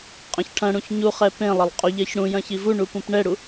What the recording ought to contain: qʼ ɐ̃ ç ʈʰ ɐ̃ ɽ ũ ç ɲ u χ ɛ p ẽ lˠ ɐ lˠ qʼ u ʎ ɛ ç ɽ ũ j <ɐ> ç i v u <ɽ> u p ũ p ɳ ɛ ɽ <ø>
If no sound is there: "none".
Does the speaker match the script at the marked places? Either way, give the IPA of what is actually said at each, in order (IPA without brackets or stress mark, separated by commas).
ɐ̃, ɳ, u